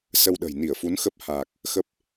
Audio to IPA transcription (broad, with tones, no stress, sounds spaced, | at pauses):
s ə˧ w ɗ ə̤˨˩ j n i˧˩ ə̯ f u˨˦ n x ə˦˥ p̚ h aː˨˩ k̚ | x ə˦˥ p̚